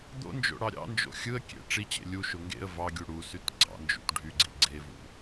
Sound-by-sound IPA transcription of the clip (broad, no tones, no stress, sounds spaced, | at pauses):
d̪ o̰ n d͡ʒ o̰ ɽ ɑ ɾʲ ɑ̰ n d͡ʒ o̰ xʲ ɯ ə̯ kʲ ḛ ʈ͡ʂ i t͡ɕ ḛ lʲ u ʃ o ŋ ɡ ḛ ə̯ v ɑ ɡʲ u ɽ u s y t ɡ͡ǀ ɑ̰ n d͡ʒ ṵ t ɖʱ y ɡ͡ǀ i ɡ͡ǀ e v ṵ